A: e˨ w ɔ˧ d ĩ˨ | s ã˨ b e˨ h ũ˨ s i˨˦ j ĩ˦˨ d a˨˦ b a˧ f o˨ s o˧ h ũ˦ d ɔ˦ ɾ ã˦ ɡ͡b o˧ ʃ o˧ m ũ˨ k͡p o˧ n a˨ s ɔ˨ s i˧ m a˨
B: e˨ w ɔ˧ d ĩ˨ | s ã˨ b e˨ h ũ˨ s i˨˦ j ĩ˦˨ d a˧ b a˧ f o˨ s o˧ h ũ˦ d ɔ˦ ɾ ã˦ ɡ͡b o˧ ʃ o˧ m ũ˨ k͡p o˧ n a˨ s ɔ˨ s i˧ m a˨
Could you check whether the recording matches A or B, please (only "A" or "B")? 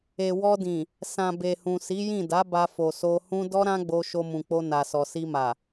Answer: A